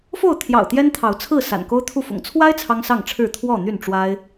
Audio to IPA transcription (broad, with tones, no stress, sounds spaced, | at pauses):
f o˥˨ ʊ̯ t̪ʰ j ɑ̰˨˩ ʊ̯ t̪ j ɛ˦ n t̪ʰ ɑ˨˦ ʊ̯ t͡sʰ ɹ̩˥˨ s a̰˨˩ n k o˦ ʊ̯ t̪ʰ u˥˨ f ʊ̰˨˩ ŋ t͡sʰ w a˦ ɪ̯ t͡sʰ ɑ˦ ŋ s ɑ˥˨ ŋ ʈ͡ʂʰ ɻ̩˥˨ t̪ʰ w ɔ˥˨ n̪ y˥˨ n ʈ͡ʂ w a˦ ɪ̯